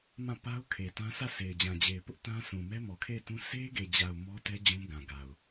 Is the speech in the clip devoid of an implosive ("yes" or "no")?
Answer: yes